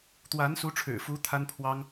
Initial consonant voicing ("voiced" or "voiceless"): voiceless